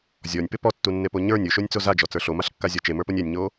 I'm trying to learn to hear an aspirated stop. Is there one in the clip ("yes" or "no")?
no